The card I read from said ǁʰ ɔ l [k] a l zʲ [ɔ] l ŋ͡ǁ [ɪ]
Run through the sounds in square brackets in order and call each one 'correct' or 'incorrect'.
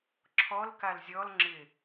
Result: correct, correct, correct

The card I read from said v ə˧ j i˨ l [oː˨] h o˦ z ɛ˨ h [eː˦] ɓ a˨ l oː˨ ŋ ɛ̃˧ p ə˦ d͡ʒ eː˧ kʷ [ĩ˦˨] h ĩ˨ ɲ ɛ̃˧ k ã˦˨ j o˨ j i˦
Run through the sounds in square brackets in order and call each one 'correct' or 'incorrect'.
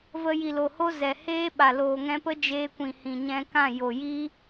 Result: incorrect: o˨, correct, incorrect: ĩ˨

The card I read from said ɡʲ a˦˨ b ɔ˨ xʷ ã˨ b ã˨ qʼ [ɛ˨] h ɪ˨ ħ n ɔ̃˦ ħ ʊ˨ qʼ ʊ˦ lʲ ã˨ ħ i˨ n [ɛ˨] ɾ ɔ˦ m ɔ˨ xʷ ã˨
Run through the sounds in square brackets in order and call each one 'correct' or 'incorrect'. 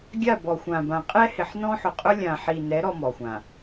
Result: incorrect: ɛ˦, incorrect: ɛ˨˦

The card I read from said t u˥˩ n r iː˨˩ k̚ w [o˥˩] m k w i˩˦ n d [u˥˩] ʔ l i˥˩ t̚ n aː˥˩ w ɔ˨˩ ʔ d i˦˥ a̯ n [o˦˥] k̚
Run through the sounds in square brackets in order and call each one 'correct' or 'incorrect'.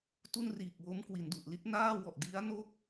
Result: incorrect: o˦˥, incorrect: u˨˩, incorrect: o˥˩

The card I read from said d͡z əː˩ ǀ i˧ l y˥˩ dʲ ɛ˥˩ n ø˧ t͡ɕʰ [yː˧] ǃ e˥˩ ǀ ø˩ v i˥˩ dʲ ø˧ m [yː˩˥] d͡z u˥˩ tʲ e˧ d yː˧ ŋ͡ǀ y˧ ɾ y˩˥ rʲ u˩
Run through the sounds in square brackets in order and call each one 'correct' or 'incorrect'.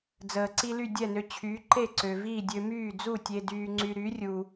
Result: incorrect: yː˩˥, incorrect: yː˥˩

